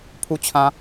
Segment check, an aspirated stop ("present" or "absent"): present